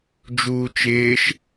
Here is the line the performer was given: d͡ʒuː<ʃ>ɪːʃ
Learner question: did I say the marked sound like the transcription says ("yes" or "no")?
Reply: no